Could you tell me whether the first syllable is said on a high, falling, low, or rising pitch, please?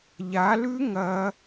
rising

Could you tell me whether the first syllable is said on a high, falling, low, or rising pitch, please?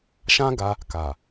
high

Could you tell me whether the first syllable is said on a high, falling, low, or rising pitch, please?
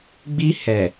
high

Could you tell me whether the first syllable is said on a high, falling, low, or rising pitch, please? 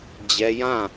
high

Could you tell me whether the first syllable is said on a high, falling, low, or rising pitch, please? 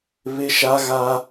high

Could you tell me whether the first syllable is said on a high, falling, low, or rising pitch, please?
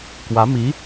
rising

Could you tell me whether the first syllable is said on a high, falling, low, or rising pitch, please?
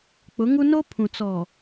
rising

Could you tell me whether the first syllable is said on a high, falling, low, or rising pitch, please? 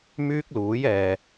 high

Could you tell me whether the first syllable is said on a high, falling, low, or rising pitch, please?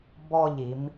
falling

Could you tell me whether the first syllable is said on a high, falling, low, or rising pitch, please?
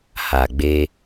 low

